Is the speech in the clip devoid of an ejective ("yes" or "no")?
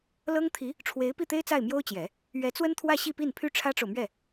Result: yes